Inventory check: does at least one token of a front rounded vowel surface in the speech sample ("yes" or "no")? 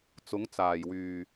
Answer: yes